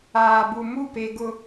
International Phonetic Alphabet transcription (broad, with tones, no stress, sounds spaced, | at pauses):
aː˨ b u˨ m u˦˨ p e˨ ɡ ʊ˨